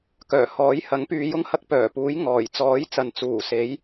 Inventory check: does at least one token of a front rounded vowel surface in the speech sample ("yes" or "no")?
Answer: yes